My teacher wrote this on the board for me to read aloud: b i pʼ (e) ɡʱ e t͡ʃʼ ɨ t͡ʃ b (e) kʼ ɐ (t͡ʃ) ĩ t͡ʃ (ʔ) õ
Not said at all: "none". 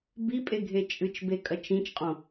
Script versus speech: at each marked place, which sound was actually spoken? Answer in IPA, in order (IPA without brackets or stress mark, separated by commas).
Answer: e, e, t͡ʃ, qʼ